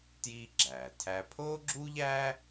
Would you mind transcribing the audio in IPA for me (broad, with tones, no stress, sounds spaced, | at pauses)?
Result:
t j iː˥ ɡ͡ǁ æː˩ tʰ æ˥ pʰ oː˥ ɡ͡ǁ u˥ ʎ æː˥